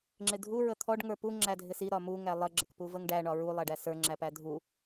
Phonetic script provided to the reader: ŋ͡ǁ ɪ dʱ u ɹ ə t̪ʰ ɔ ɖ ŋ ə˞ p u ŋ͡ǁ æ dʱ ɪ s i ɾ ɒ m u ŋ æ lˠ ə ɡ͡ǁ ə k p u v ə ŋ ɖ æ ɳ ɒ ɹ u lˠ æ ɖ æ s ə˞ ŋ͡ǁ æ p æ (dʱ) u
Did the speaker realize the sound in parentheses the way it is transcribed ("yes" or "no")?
yes